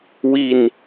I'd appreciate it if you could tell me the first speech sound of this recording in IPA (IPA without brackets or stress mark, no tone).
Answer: w